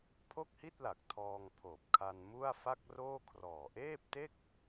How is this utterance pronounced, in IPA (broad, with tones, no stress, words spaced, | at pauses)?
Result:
pʰo˥˩k̚hi˥˩t̚la˨˩k̚ tʰɔː˧ŋpʰoː˨˩p̚kʰa˧n mu˥˩a̯fa˥˩k̚roː˥˩ kʰrɔː˨˩ʔeː˥˩p̚te˥˩k̚